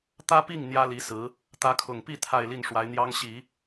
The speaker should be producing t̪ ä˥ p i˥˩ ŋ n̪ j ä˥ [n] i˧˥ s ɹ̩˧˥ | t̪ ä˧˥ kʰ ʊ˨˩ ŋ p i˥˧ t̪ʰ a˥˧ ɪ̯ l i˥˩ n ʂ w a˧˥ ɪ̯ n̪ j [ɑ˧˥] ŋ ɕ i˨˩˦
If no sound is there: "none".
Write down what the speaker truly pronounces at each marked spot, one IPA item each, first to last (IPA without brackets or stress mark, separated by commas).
l, ɑ˥